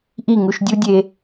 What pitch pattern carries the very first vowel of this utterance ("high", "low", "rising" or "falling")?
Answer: falling